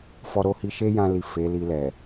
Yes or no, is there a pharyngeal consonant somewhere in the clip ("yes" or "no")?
no